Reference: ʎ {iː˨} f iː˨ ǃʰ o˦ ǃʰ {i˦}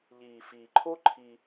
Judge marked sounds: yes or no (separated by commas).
yes, yes